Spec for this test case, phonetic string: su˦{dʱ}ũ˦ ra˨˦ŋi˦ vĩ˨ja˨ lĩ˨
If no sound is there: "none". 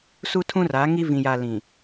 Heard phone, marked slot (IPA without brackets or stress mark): tʰ